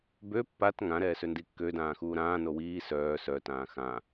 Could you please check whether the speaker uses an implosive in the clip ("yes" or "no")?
no